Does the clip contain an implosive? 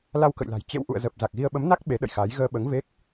yes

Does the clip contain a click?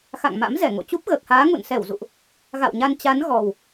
no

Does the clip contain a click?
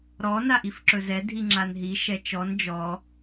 yes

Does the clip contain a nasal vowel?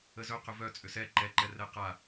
no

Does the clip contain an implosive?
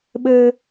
yes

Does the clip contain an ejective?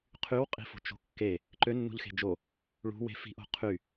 yes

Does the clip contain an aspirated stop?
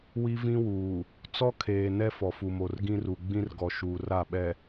yes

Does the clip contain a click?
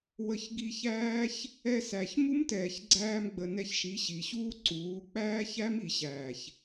yes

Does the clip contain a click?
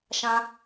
no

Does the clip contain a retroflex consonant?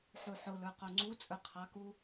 no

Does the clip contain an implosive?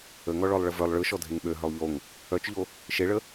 yes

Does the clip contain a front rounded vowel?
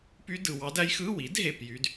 yes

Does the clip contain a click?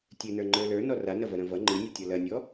yes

